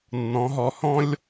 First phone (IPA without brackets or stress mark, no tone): nː